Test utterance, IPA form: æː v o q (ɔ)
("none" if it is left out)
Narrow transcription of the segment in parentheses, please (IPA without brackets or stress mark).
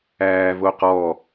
ɔ